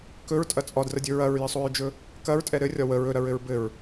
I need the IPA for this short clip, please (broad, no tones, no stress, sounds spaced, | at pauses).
k ɵ ɹ tʼ ɐ t͡sʼ ɒ d r ə dʲ ɵ ɹ ɐ ɹ j ɘ sˤ o ɹ d͡ʒ ɵ | k ɐ ɹ tʼ ɛ ɾ ɘ rʲ ɒ w ə ɹ ɵ ɾ ɐ ɹ ɘ ɹ b ɘ ɹ